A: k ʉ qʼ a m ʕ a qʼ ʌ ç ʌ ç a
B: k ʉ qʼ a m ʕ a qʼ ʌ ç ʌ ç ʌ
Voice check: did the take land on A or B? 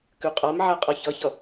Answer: B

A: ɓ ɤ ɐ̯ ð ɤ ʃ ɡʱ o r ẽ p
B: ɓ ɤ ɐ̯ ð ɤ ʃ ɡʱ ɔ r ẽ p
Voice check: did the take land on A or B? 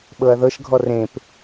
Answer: B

